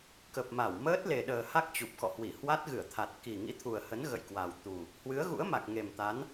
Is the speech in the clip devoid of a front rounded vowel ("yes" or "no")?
yes